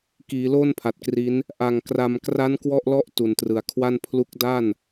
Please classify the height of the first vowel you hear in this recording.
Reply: high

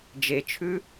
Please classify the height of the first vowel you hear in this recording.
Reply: mid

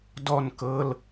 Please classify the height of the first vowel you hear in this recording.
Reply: mid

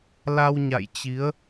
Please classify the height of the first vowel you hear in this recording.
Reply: low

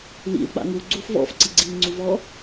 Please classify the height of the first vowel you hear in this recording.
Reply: high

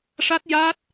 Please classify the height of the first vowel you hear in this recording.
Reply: low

